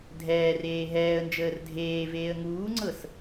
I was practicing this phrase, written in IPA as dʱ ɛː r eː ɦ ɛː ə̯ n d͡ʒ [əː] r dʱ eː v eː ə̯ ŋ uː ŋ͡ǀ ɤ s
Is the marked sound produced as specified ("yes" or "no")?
yes